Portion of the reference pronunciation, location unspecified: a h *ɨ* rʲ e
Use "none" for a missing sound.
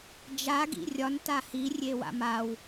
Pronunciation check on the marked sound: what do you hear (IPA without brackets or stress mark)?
i